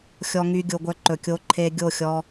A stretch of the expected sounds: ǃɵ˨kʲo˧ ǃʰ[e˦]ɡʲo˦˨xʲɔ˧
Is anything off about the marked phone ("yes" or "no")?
yes